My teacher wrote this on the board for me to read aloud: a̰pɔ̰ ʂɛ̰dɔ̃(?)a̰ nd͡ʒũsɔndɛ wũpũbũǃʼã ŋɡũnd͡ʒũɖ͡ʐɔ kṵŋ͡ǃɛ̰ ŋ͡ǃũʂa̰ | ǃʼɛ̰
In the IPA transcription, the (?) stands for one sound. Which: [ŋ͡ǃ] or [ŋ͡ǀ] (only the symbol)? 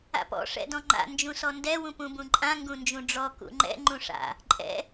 ŋ͡ǃ